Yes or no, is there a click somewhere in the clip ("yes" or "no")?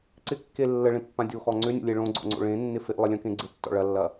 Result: yes